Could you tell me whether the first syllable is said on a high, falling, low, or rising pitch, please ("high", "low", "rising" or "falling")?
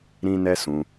high